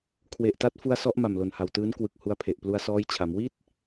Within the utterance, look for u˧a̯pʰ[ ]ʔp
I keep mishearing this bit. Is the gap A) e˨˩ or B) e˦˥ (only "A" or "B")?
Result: A